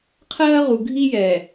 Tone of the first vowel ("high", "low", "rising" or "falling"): high